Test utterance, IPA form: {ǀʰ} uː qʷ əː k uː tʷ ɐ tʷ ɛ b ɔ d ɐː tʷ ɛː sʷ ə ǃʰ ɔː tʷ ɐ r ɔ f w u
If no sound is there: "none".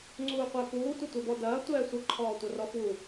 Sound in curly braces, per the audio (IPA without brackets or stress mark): ŋ͡ǀ